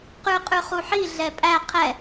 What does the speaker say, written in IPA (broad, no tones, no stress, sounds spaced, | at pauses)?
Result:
q ʉ qʼ ʉ χ u ħ i ɮ ɛ pʼ æ qʰ ɛ